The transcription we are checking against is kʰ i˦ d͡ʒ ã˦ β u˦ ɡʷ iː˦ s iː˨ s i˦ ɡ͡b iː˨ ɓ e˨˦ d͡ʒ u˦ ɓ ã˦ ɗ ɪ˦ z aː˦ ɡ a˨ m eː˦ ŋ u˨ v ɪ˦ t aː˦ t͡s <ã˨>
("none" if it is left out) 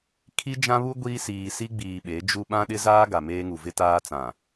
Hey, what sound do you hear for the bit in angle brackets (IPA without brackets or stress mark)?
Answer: ã˨